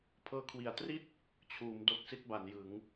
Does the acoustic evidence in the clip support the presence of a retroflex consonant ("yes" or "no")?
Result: no